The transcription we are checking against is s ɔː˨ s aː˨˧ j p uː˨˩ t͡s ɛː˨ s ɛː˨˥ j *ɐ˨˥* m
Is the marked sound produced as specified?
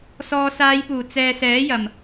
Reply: no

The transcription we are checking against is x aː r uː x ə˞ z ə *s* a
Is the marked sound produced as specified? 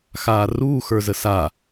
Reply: yes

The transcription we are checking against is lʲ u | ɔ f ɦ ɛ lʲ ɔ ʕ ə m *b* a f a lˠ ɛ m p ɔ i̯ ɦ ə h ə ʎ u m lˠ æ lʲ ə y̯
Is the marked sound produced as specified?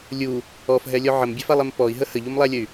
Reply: no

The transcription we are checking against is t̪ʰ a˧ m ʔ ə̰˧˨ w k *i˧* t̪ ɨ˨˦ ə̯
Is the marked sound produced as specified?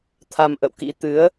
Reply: no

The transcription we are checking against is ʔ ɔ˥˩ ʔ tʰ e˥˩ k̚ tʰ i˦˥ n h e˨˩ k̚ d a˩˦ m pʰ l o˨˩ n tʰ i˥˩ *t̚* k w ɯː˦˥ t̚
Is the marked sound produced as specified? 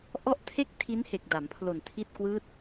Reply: yes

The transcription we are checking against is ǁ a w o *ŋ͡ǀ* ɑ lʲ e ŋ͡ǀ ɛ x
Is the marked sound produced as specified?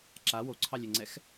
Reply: no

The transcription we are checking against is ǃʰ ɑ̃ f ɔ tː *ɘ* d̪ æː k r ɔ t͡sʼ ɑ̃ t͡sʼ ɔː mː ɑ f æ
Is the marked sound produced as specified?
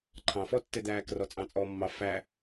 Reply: yes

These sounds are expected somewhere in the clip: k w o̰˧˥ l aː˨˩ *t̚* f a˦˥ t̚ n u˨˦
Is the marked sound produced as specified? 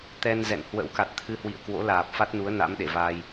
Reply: no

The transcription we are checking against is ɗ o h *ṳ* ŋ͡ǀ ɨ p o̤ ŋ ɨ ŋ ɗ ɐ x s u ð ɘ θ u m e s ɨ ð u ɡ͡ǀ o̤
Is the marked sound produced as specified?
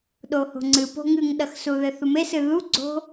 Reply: no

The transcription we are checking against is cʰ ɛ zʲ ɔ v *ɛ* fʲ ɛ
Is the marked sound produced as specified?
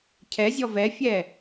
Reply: yes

